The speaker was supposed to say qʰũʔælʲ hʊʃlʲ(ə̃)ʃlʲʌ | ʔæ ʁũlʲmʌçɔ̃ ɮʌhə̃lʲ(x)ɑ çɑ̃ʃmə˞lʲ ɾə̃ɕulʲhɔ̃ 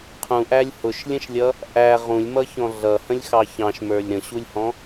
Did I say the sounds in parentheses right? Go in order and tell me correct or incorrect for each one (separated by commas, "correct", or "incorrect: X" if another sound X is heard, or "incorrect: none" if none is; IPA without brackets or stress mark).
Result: correct, correct